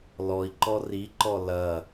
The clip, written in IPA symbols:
l ɔ i̯ ǃ ɔ r i ǃ ɔ l ɐ

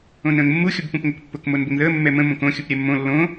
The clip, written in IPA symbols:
õ n ə̃ː ŋ mː u xʲ ʊ b p ũ p ŋ o k pː ʊ k m o n b ʊ ŋ ð əː mː ɛ m ə̃ m õ k õ xʲ u p ɾʲ ɛ mː õ lː õ

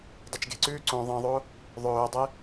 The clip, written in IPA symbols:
dˤ e t͡ʃ ɡ e̤ ǀ ʉː ǀ õ ðˤ ĩ ðˤ o | ðˤ ɵː dˤ e

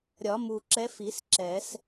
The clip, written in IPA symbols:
ɾʲ ɒ˨˩˦ m u˨˩ ǁ ɛ˧˥ f i˨˩˦ s ǁ ɛ˨˩˦ s

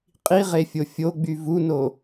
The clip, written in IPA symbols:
qʼ i ʁ e fʲ o fʲ o ɡ͡b y v u n o

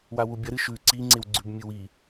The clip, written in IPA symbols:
w a w u bʲ ɐ ɾ ɨ ʃ ʉ ǀ i ŋ͡ǀ e w ɡ͡ǀ ʉ b mʲ ɨ w i

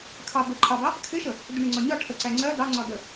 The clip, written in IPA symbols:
kʰ ɑ b ə ǃʰ ɑ b ɑ | kʰ ɪ ʃ ə | d ɪ ɳ ɪ ŋ͡ǀ ɒ ɲ ɒ ʈʰ ə ǀ æ ŋ͡ǀ ɜ d ɑ ŋ͡ǀ ɒ d ə

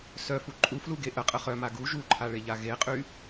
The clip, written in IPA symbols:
s œ f u ǃʼ u f l u ɡ e ʔ ə qʼ ə χ œ m a ɡ u ʒ u ǃʰ a ɭ e ʎ a ɣ e qʼ y

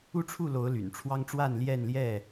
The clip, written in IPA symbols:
u˥˨ ʈ͡ʂʰ u˥˨ l o˨˦ ʊ̯ l y̰˨˩ n ʈ͡ʂʰ w ɑ˦ ŋ ʈ͡ʂ w a˥˨ n l j ɛ˥˨ n l j ɛ˥˨

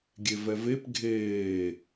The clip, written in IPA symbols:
ɡʲ e v ɛ v e p ɡʱ eː

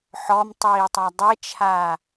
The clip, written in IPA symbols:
ħ ɔ m tˤ iː tˤ a dˤ e t͡ʃʰ aː

